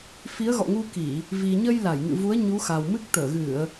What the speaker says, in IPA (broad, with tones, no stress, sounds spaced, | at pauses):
f i˨˦ ə̯ ɣ ɔ̰˧˨ ŋ u˧ k i˧˩˨ | v i˨˩ ɲ ə˧ j l a˧˩ j ŋ ɨ̰˧˨ v u˨˦ ə̯ ɲ u˨˦ x a˨˩ w m ɨ˦˥ k̚ t̪ əː˧˩ ɣ ɨ˧˩˨ ə̯